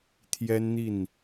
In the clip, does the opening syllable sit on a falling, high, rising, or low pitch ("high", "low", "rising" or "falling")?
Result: high